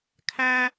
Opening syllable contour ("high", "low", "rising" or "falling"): high